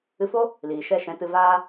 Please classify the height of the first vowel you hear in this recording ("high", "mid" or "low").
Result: high